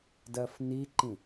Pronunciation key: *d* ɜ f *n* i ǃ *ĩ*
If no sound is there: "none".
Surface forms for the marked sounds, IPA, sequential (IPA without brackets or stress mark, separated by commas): d, n, ĩ